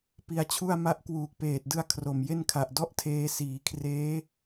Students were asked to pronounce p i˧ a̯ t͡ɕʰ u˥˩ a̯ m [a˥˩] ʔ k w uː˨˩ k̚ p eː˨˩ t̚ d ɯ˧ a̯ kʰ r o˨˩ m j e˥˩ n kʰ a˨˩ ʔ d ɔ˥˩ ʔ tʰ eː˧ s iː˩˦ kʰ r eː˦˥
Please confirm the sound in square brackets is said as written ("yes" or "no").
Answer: yes